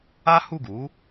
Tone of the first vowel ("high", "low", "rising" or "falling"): high